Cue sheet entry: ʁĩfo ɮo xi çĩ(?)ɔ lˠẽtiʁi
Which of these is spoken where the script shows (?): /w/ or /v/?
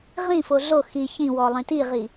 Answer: w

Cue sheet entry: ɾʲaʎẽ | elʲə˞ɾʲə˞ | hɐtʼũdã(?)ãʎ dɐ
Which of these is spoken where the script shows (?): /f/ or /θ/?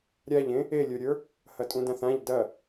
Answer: θ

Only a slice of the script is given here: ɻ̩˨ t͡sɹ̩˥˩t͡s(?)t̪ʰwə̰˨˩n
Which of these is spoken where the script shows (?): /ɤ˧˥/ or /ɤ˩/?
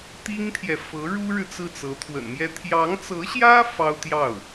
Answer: ɤ˧˥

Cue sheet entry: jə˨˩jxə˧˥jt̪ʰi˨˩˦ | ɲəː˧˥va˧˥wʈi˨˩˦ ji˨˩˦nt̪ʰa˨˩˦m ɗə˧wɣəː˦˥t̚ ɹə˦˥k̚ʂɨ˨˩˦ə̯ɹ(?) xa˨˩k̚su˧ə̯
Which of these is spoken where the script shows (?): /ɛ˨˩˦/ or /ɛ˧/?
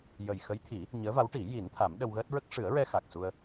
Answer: ɛ˧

